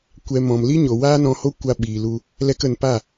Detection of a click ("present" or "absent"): absent